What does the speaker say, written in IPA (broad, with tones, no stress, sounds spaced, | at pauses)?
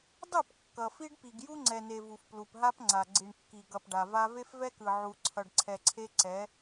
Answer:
dˤ ɯ˦˨ p kː ʌ˨ f i˦ ɖ p i˨ ɡ j u˦ ŋ͡ǀ ɛ˨ n e˨ v u˨ f p l u˨ p ɦ a˦ p ŋ͡ǀ a˨ ɡ͡ǀ i˨ ɳ kː i˨ ɡ ʌ˨ p ɖ a˨ v a˦ v e˦ f v ɛ˦ k ɯ˨ ʕ u˨ ǀʰ ʌ˨ ɖ ǀʰ ɛ˨ ǀʰ e˦ ǀ ɛ˨˦